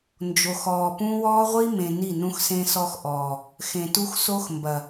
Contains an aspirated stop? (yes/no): no